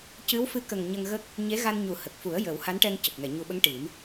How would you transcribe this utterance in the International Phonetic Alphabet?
cɨ˧˥wfɨ˧˥kə˨˩ŋ ɲə˧ŋɣə˦˥k̚ | ɲe˧˥ ɣa˧nɲu˨˩˦hə˨˩k̚fu˨˩˦ə̯ jə˨˩˦w ha˧˥nʈɛ˧ŋ cə˨˩k̚ŋɛ˨˩˨ɲu˨˩ɓə˧˥ŋ ʈi˨˩˦m

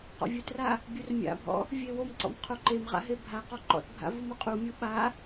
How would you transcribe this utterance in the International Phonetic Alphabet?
qɔ̰vʲʊtra | bʲurmʲa̰bʱɔ̰ | vʲewomǀɔ̰m qʰoǃemʁa̰ ɦebʱaqɔ ǃɔ̰tbʱa̰ vumʊqʼumʲu ɓa

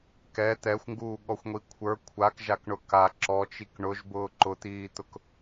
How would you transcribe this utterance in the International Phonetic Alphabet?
kɛ t̪ɛxʷŋɡuːɠɔxʷŋʷi kʷʰə˞ kʷʰakʒakɳʊ ka ǁɔt͡ʃik ɳʊʒbʊː ǃʊt̪iːt̪ʊk

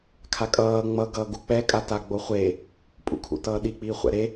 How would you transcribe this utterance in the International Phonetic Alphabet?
kʰakʼʌː ŋ͡mʌ ɡʌːɡuk͡pɛ kʼataɡ͡boχʷe | pʼṵkʰṵtʌːɗi k͡piːχʷɛ̰ɾe

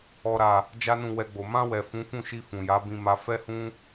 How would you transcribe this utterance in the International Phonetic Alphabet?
ɔ˨ɾa˨ | d͡ʒa˦nũ˦˨ wɛ˧ɡ͡bo˨ mã˧wɛ˨ fũ˨˦fũ˦˨ʃi˧ fũ˨ja˨˦bĩ˧ ma˧ fɛ˦hũ˦

